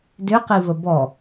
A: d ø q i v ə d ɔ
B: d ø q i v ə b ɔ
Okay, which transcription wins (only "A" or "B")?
B